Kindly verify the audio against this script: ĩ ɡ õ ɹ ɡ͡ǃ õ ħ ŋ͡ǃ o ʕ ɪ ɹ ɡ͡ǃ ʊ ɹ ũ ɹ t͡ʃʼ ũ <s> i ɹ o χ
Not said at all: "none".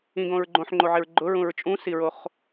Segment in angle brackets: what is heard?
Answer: s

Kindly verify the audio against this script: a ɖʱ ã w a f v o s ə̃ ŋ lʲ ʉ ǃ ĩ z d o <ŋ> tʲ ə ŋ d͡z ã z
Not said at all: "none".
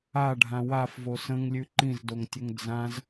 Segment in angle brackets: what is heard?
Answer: ŋ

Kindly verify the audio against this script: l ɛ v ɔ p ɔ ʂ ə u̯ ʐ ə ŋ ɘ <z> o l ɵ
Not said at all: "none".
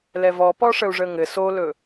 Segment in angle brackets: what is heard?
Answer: s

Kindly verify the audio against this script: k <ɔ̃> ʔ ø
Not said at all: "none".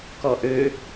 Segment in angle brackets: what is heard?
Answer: ɔ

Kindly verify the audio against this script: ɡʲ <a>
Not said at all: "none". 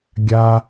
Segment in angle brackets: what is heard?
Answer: a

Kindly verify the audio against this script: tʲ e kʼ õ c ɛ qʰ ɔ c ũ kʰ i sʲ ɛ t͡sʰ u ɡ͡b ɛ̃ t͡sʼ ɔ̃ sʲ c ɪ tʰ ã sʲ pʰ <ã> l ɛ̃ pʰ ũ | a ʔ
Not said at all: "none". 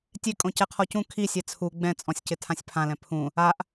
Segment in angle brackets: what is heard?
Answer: ã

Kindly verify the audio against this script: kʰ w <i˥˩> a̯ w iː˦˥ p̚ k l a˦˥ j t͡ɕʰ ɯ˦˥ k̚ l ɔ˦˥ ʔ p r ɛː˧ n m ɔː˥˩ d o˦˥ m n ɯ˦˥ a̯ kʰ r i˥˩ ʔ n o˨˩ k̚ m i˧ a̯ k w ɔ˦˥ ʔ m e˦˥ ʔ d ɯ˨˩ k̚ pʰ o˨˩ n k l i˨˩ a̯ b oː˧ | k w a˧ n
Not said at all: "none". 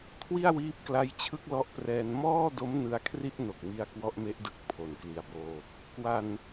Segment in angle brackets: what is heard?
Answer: i˥˩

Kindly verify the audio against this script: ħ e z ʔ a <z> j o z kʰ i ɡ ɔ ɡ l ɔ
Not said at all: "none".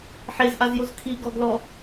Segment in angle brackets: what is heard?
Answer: z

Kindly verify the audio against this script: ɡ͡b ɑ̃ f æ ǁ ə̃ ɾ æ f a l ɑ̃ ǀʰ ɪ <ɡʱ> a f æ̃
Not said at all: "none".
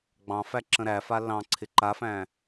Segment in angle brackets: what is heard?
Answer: ǃ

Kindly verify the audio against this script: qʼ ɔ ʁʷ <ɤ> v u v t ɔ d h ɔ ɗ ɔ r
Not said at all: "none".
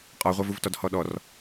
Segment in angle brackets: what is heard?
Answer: ɤ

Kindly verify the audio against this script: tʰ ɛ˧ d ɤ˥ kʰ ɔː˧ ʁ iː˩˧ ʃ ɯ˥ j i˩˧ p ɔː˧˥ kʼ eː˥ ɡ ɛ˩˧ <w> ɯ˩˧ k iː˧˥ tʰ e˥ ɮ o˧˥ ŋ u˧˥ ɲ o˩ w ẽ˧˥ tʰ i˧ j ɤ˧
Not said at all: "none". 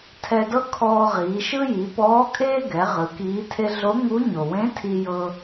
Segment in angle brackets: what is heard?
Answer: ʁ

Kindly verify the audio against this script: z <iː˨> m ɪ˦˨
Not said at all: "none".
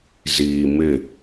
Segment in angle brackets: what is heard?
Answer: iː˨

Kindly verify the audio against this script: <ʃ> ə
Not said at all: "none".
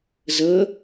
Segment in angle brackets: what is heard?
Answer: z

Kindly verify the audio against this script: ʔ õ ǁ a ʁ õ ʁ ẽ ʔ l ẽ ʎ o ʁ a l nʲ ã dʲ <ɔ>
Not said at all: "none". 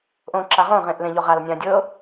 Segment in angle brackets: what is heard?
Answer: ɤ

